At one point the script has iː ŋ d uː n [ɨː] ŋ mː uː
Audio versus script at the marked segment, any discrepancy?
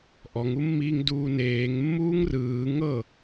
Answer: yes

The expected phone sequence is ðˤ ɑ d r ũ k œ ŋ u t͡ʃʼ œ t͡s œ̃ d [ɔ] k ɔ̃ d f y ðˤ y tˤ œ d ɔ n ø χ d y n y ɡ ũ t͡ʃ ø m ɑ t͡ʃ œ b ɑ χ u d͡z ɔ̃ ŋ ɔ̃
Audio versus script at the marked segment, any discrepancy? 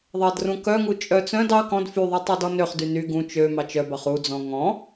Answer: yes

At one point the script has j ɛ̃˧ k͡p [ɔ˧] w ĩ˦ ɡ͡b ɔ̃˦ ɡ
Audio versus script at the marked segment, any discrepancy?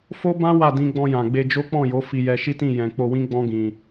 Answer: yes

